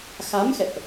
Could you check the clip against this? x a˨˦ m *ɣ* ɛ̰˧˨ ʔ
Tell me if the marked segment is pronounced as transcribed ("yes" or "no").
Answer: no